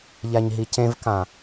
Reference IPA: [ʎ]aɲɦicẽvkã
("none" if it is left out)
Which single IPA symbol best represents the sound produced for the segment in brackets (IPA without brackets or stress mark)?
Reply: ʎ